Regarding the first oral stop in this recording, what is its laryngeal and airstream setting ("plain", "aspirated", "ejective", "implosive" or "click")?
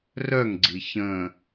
click